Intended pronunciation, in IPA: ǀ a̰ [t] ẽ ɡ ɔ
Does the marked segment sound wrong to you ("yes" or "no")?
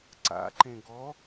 yes